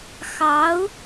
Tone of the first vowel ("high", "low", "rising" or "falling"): rising